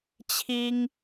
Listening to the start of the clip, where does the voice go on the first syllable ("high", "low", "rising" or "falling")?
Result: high